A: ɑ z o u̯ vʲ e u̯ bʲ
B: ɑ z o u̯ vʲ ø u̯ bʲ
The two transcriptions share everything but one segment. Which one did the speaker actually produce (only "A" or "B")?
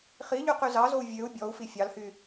B